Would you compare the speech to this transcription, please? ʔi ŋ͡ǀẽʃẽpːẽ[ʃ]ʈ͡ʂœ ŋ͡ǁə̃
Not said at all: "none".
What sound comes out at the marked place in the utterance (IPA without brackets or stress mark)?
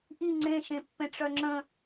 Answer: none